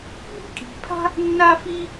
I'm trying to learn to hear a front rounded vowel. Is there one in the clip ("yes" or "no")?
no